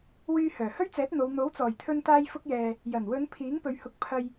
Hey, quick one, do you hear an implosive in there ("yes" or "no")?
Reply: no